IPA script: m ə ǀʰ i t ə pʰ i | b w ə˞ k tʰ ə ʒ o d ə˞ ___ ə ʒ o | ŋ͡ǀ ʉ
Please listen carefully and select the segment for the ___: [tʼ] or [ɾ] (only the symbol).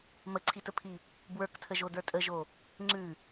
tʼ